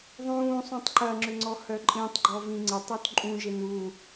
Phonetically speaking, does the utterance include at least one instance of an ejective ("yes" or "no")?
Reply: yes